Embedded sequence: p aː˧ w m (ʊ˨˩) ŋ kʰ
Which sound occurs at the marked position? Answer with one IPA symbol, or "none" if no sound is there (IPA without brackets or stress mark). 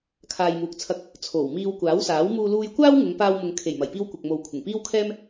ʊ˨